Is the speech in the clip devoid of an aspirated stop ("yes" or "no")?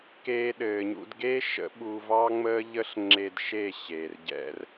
yes